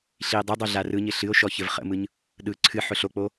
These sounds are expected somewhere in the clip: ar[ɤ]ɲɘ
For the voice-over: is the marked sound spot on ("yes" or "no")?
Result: no